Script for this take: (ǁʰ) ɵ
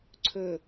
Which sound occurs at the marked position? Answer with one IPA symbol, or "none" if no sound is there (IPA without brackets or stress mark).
ǀʰ